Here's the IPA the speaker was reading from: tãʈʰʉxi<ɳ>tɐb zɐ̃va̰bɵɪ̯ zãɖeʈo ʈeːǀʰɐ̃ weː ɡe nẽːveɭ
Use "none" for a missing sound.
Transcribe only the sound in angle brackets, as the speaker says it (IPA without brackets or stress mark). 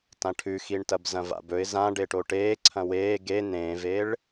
ɳ